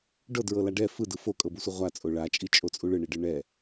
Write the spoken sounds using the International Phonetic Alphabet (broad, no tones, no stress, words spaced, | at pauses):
ɖɤdɹɤla ɖɛ fɯdɯ fokʼɤbusʷɯ ʁʷat͡sʼo ɭat͡ʃʼit͡ʃʼot͡sʼu ɭɯɳiɖɯ ɳɛ